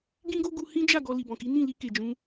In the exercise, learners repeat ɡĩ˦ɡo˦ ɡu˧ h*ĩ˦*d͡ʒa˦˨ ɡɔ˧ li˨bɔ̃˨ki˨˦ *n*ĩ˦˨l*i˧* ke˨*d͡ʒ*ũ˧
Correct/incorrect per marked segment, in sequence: correct, correct, correct, correct

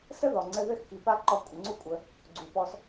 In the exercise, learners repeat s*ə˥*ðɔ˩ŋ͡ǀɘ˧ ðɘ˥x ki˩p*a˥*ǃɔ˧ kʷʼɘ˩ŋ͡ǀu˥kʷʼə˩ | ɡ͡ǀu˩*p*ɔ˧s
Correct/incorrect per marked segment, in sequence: correct, correct, correct

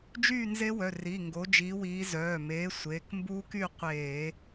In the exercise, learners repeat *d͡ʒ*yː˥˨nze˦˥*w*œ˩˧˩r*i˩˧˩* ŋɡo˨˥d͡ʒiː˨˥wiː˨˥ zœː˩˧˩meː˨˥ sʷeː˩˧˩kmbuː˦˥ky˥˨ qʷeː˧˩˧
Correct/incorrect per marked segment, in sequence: correct, correct, correct

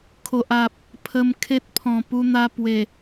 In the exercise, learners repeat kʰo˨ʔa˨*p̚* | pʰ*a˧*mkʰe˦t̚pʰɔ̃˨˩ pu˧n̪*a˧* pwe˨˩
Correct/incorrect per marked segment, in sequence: correct, incorrect, correct

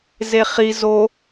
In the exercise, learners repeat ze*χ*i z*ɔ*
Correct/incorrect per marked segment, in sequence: correct, incorrect

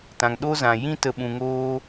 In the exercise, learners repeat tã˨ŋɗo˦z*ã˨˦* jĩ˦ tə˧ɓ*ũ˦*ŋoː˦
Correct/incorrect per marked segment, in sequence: incorrect, incorrect

